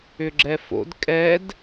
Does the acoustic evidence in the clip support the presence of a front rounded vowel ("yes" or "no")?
yes